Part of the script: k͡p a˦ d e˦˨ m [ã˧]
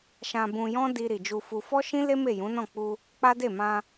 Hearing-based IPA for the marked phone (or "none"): ã˧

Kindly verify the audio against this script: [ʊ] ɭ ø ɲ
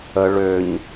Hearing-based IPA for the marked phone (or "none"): ə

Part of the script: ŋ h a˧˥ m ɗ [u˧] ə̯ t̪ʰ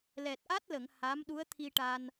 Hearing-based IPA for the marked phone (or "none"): u˧˥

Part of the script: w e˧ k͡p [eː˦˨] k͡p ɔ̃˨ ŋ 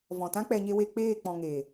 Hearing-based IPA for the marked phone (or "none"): eː˦˨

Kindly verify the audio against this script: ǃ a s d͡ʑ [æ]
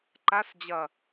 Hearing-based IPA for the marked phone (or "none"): ɐ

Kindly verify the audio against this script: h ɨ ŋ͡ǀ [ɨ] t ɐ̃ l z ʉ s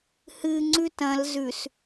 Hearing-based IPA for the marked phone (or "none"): ʉ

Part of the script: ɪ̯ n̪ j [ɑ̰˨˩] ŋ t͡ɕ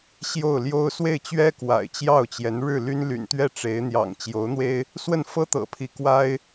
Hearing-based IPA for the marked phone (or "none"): ɑ̰˨˩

